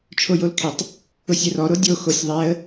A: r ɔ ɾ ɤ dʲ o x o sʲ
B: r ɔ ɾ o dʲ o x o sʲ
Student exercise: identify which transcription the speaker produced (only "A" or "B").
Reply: B